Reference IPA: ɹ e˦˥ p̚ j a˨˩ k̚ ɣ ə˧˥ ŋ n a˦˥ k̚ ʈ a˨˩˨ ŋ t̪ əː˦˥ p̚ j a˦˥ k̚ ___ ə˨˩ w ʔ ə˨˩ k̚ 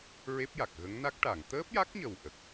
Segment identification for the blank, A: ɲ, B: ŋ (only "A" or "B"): A